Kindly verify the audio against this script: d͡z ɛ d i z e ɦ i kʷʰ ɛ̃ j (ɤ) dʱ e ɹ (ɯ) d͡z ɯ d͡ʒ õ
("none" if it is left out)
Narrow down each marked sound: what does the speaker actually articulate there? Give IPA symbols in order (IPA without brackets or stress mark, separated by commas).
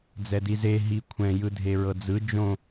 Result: ɯ, ɤ